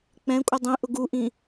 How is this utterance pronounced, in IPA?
k͡p ɛ̃ kʷʼ ɪ dˤ ĩ ʔ ʊ ɡ u ʔ ĩ

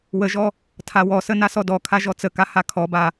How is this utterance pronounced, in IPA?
w ə ʒ ɔ | tʰ a w ɔ s ə n a s ɔ d ɔ kʰ a ʒ ɔ t͡s ə k a h a kʰ ɔ b a

